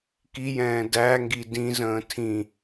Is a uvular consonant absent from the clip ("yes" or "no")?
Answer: yes